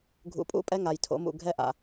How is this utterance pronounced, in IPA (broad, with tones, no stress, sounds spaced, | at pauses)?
ɡʱ ṵ˨ pʼ ṵ˦ pʼ ɛ˦ ŋ a˨ j tʰ o̰˨˦ m ṵ˨ ɡʱ ɛ˦ ʔ a̰˨